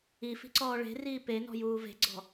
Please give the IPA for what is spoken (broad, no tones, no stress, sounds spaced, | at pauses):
i f i̤ ǀ ɔː ɭ e̤ r iː p e n ɔ̤ j uː v e̤ ɡ͡ǀ ɔ̤